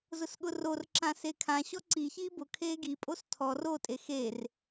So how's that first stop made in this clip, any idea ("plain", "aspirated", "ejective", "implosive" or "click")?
implosive